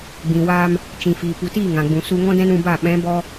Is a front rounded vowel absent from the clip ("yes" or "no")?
yes